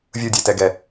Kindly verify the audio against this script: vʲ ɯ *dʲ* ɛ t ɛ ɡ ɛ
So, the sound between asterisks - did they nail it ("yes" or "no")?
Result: yes